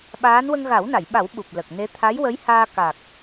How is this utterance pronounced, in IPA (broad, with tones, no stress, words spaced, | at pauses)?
ɓaː˧˥n wə˧ŋɣa˨˩˦wna˨˩˨jɓa˨˩˦w ɓu˨˩p̚lə˨˩k̚ ne˧˥ t̪ʰa˧˥jwə˧˥jhaː˧ ka˨˩k̚